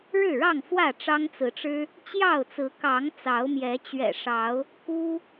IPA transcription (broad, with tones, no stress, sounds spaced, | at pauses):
ɻ ɻ̩˥˨ ɻ ɑ˥˨ ŋ f w ä˥˨ ʈ͡ʂ ɑ˦ ŋ t͡s ɹ̩˨˦ ʈ͡ʂ ɻ̩˦ | t͡ɕ j ɑ˥˨ ʊ̯ t͡s ɹ̩˨˦ k ɑ˨˦ ŋ t͡s ɑ˨˦ ʊ̯ m j ɛ˨˦ t͡ɕ ɥ ɛ̰˨˩ ʂ ɑ˨˦ ʊ̯ | k u˦